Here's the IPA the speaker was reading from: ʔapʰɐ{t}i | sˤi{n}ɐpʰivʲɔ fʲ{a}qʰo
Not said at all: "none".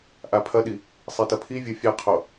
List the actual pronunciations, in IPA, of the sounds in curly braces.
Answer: ɗ, t, a

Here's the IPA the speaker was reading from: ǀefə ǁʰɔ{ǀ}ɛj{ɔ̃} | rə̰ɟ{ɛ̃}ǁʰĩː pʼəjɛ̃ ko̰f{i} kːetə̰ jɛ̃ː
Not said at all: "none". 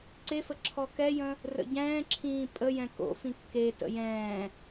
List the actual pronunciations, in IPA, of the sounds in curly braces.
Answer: k, ə̃, ɛ̃ː, ĩ

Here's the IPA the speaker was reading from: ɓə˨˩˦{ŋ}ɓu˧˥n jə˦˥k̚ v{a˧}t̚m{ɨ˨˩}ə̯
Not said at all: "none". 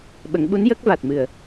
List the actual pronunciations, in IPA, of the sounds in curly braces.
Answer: ŋ, a˨˩, ɨ˨˩

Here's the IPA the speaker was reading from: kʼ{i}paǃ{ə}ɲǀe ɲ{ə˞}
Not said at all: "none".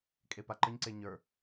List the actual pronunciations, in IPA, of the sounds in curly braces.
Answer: e, ə, ə˞

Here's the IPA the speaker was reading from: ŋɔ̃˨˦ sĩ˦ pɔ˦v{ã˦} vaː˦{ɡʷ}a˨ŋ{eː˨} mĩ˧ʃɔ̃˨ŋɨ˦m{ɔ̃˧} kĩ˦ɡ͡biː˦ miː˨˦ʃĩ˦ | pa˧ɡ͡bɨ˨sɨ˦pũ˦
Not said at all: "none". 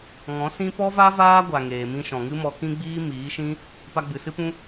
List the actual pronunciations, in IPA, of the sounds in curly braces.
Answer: a˦, ɡʷ, eː˨, ɔ˧

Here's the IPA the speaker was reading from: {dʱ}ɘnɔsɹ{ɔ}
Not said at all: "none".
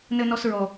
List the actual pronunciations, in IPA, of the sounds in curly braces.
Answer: n, ɔ

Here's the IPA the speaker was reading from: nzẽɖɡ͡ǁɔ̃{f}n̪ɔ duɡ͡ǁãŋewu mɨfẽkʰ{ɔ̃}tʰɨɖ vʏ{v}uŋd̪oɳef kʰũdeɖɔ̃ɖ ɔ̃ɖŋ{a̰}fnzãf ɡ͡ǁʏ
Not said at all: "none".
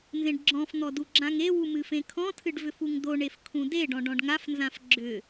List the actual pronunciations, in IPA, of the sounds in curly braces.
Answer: f, ɔ̃, f, a

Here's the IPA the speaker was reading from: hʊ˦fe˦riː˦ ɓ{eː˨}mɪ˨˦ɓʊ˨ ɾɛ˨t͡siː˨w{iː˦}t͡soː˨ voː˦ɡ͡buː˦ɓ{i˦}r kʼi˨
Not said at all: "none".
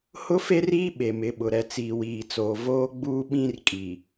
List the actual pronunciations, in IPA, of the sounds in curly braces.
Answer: e˨, iː˨, ĩ˦

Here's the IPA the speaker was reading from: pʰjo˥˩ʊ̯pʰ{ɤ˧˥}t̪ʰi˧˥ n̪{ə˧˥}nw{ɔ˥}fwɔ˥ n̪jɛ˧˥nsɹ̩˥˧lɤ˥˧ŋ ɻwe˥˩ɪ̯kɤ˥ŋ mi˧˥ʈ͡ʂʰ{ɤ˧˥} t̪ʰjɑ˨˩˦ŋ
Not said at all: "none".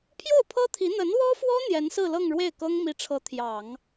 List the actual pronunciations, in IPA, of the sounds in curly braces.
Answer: ɤ˥, ə˧˥, ɔ˥, ɤ˧˥

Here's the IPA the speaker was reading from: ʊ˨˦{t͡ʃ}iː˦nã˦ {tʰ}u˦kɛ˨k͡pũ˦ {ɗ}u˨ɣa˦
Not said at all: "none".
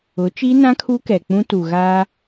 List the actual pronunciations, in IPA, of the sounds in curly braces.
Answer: t͡ʃ, kʰ, t

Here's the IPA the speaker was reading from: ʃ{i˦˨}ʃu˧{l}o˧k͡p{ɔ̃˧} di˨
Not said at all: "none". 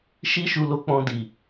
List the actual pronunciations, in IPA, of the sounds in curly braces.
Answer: i˦, l, ɔ̃˧

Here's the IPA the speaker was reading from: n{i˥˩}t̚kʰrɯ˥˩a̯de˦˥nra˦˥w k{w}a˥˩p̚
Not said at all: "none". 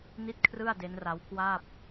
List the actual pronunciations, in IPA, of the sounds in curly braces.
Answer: i˥˩, w

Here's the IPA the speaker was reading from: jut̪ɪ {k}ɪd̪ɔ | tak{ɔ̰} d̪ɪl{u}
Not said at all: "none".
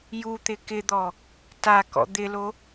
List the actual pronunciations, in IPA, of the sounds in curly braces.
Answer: k, ɔ̰, o

